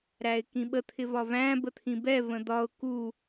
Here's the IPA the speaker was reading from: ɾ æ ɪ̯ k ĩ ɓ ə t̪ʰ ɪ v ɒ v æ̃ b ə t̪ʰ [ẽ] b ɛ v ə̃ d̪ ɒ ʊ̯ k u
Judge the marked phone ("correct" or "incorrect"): incorrect